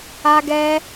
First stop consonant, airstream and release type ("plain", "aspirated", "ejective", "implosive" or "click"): plain